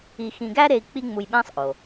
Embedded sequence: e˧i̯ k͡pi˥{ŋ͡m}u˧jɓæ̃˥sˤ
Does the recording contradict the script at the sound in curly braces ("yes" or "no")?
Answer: no